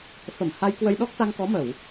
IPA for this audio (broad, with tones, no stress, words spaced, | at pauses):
fə˧˩m ha˧jkwə˧jɗɔ˦˥k̚ t̪a˧ŋkɔ˨˦mə˧˩˨w